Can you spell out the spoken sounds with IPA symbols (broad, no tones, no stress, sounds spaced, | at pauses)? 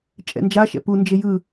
t͡ʃʼ ɛ̰ n d͡ʒ a ʃ ɛ̰ p u n d͡ʒ e j ɯ